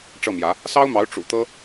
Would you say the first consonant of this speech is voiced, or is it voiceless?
voiceless